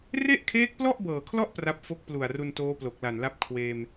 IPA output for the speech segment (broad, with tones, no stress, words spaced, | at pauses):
re˥˩ʔkʰeː˦˥k̚plɔ˥˩ʔ bɤː˨˩kʰlɔ˥˩ʔ pra˥˩p̚ fo˦˥k̚plu˨˩a̯ru˧n toː˦˥plo˨˩k̚la˨˩nla˦˥p̚ kʰweː˧m